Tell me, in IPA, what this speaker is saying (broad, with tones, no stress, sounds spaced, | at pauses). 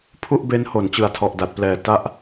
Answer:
pʰ u˥˩ ʔ b e˦˥ n h o˩˦ n t͡ɕ ɯ˨˩ a̯ tʰ ɔ˨˩ ʔ d a˨˩ t̚ p l ɛː˨˩ t a˦˥ ʔ